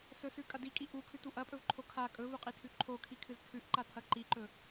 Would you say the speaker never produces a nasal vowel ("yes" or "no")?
yes